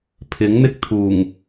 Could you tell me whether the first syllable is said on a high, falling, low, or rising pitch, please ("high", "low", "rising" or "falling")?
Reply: rising